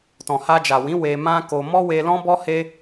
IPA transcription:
tɔ̃˨ha˧d͡ʒa˨wĩ˨˦ we˧mã˦ ko˧ mɔ˦we˧lɔ̃˦ bɔ˦he˦

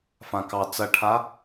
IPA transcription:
fãkɑ t͡sɐʈʰa

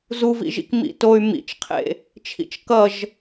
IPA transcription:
zuvḭʒḭk mḭtoy̯ mḭt͡ʃqʰḛ | t͡ʃʰḭt͡ʃkʌʒ

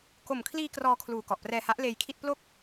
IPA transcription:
ko˨˩mkʰliː˧ krɔː˧kʰluː˨˩ kɔ˨˩ʔprɛː˧ha˦˥ʔ leː˧jkʰi˥˩t̚ plo˥˩k̚

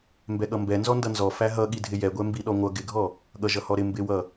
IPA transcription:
mbɛɠʌmbɛ nzɔndʌnzɔ fæɦʌ ɠidʱɪjɛɡʷɛ mbiɗɔŋʷʌ ɡɪɡʱɔ | ɠʌʒʌhɔɾɪ mbɪwʌ

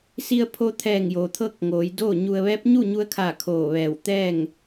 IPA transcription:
si˧ə̯pʰo˧t̪ʰɛː˧˩ŋ joː˩t̪ʰɤː˥˨k̚ŋoː˩˧j doː˥˨ɲu˧ə̯ ʋɛː˧˥p̚ɲu˥˨ɲu˧ə̯kʰaː˧˩ kʰoː˧˩ʋɛː˧˩w t̪ɛː˥˨ŋ

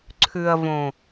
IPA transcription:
ǀʰʉ˨ɐ̯võ˨

